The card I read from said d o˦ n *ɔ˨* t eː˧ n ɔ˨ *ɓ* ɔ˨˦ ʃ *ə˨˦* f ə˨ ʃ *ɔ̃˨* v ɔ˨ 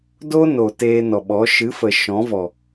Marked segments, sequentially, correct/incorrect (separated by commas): incorrect, correct, incorrect, incorrect